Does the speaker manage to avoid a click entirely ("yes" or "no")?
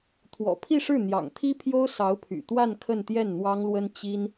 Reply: yes